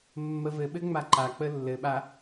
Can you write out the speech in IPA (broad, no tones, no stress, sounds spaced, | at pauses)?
mː ə v ɘ ɓ ɘ ŋ͡m a ǃ a k͡p ə lː ɘ ɓ a